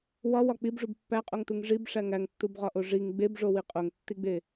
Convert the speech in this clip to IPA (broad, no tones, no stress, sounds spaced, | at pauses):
w ɒ w ɒ k͡p i b ʐ u b pː æ qʼ o ŋ t u ŋ ʐ i b ʂ æ ŋ æ ŋ tː u b ʁ ɒ ʔ o ʐ i ŋ ɡ͡b e b ʐ o w i qʼ o ŋ tː i ɡ͡b e